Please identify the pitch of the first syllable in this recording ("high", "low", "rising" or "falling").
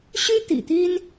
high